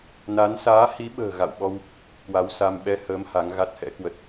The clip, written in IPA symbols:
n a˨˦ n s aː˨˦ h i˨˦ ɓ ə̤ː˨˩ ɣ a̰˧˨ w ɓ ɔ˧ w | k w a˨˦ w s a˧ m ɓ ɛ˧ h əː˨˦ m h a˨˦ ŋ ɣ a˦˥ t̚ h ɛ̰˧˥ k w ə˦˥ t̚

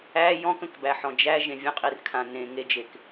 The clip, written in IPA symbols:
æ j ɔ̃ k ə̃ k b æ ħ ɔ̃ d͡ʒ æ ʒ ẽ vʲ ə̃ qʼ i r kʰ ã n ẽ ŋ e d͡ʒ e k

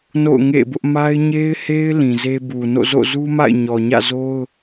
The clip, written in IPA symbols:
n o̰˦˨ ʊ̯ ŋ ḛ˦˨ b ʊ˦ ʔ m a˦ ɪ̯ ɲ e˦ ɪ̯ h e˦ ɪ̯ l ĩ˨ z e˦ b u˨ n o̰˦˨ z o̰˦˨ z u˦ m a̰˦˨ ɪ̯ ɲ ɔ˨ ɲ ä̰˦˨ z o˦ ʊ̯

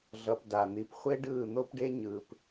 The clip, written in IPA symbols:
ɮ ʌ˧ p d a˨ n̪ i˨ p χʷ e˦ ɖ ɯː˦˨ n̪ o˦ p ɖ e˦ ɲ ɯː˨ p

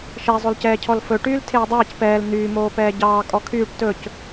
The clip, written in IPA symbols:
ʃ ɛ zˤ o l c ɛː cʰ ɔ l f ɵ ʈ yː l tʰ eː dˤ ɛː c p ɛː l n̪ yː m oː p ɛː ɟ ɑː kʼ ɔ kʰ yː ʈ t ɵ c

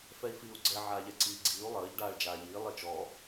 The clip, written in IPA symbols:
f ɛ i̯ f iː u̯ ɡ͡ǀ ɛ ʕ aː ʎ ɛ ǀ iː ɡ͡ǀ iː u̯ lˠ əː ʎ ɖ aː ɭ d͡ʒ aː ʎ iː lˠ i t͡ʃ ɔ

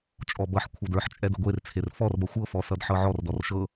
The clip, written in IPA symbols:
t͡ʃʼ ɔ b ʌ ħ kʷʰ ɤ d ə˞ ħ t͡ʃʼ ɛ d ə ɡʷ e r t͡sʰ e r f ɔ r b ʌ xʷ ɤ f ɔ s ʌ d ħ ɤ ʕ ɔ r d ɔ r ʃ ɤ

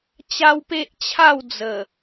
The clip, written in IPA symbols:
t͡ɕ a˦ w p e˦ ʔ t͡ɕʰ a˥˧ w d͡z ə˨˩

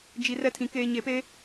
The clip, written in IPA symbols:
d͡ʒ i˨ r ɛ˦ tʰ ĩ˨ k eː˨ ɲ e˨ p eː˦

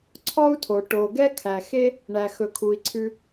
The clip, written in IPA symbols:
ǀʰ ɔ˥ u̯ tʰ o˩ ʈ o˩ ɡ ɛ˦ kʰ æ˩ x e˥ | ɳ æ˩ x ɵ˩ kʰ u˩ i̯ ǀʰ ʉ˨

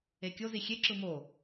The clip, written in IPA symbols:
e kʲ o z i xʲ e ǁ ɯ m o

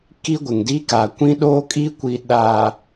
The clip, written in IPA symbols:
k i˦ ɡʷ ɪ˨ ŋ d i˦ k a˨ kʷ ĩ˦ ɗ oː˦ kʼ i˦ kʷ i˨ ɗ a˨

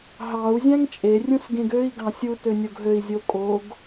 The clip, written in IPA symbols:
ɦ ɑ u̯ zʲ æ̃ ŋ t͡ʃʼ e rʲ ũ s ɡ ẽ ɡ ø i̯ ɡ ɑ̃ sʲ u t ø nʲ o ɡ ɦ ø i̯ zʲ o kʼ o ɡ

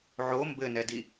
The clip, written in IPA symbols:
ʕ o m b ɘ n ɛ d i

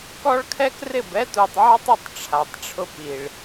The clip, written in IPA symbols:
k ɔ˦ ɭ kʰ ɛ˦ k r ɪ˦˨ b ɛ˦ t u˨ tˤ ʕ ɔ˦ tˤ ɪ˦˨ tˤ ʈ͡ʂʰ a˨ tˤ ʈ͡ʂʰ ʊ˦ p i˨ ɭ

